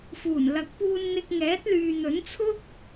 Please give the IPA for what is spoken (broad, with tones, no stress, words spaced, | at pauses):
fuː˨˩nlɐ˨˥k̚puː˧nn̪ɪ˧k̚ ŋɛː˨˥t̚lyː˨n̪ɵ˨˥nt͡sʰʊ˥k̚